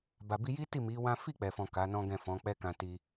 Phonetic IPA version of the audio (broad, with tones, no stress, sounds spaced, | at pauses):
b a˨ b i˧ j i˦ t i˦˨ m i˨˦ w ã˦ f i˦˨ k͡p ɛ˨ f ɔ̃˨ k a˨˦ n ɔ̃˦ ɡ ɛ̃˦˨ f ɔ̃˨˦ k͡p ɛ˦ k ã˧ t i˧